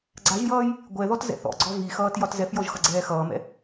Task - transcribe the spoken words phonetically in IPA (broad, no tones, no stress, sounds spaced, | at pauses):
ɡ͡ǀ a ʒ j ʌː j | ɡʷ ɛ ð ɔ t z ɛ̰ θ ɔ̰ ɡ͡ǀ ɔ v i x ʌː t j ɒ t z ɛ f j ɔ ʒ x ʌ ɡ͡ǀ ɛː x ʌː m ɛ̰